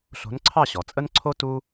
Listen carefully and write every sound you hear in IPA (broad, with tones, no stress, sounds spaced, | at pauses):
ɬ o̤˨˥ n ǀʰ ɑ˥˨ ɕ ɔ˩˧ t͡sʼ ə˥ n ǀʰ o˥ t u˥